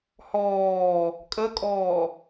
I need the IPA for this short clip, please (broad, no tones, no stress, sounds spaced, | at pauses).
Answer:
h ɔː | kʼ ə kʼ ɔː